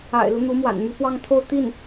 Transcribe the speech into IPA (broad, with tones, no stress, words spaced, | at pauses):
a̰˨˩ɪ̯lu˦n̪u˧˥ mwa̰˨˩nmy˧˥pwɑ˥˧ŋt̪ʰo˥˧ʊ̯ t̪i˥˩n